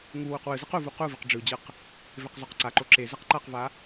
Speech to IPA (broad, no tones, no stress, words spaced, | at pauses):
ŋuwuq wɯzɯq uvu quviq ɖ͡ʐɯd͡ʑɯq | veqzoqǀaǃo ǁezɯq ǃaqva